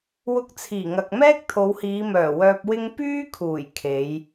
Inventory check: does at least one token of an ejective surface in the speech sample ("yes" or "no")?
no